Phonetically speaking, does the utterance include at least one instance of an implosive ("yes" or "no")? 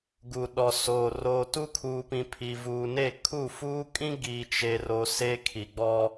yes